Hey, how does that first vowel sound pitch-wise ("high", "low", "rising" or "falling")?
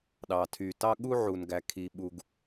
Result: low